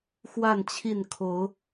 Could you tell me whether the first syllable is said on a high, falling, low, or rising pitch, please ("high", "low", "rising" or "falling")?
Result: falling